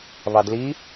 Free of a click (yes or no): yes